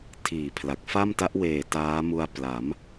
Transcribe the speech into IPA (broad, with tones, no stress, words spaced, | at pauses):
tʰiː˨˩pʰla˨˩k̚ fa˥˩mta˦˥ʔ weː˨˩ taː˦˥ mu˧a̯pla˩˦m